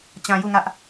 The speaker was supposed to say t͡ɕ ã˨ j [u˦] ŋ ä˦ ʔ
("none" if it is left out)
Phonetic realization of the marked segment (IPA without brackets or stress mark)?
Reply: u˦˨